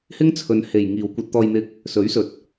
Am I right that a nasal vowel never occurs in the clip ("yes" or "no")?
yes